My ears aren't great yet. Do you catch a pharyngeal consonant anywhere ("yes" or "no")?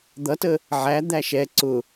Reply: yes